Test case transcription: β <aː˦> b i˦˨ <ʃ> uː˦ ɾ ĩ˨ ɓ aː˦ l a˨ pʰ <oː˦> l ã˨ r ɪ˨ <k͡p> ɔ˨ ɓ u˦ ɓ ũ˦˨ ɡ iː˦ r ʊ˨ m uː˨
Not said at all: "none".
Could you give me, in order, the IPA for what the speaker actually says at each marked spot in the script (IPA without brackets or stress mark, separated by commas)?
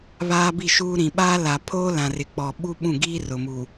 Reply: aː˦, ʃ, oː˦, k͡p